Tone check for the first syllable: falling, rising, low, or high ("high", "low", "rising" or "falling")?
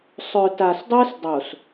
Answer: low